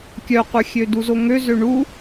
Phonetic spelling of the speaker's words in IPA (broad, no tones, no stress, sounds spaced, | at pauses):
kʲ œ qʷ œ xʲ ø d u z o ŋ ø z ø ɳ u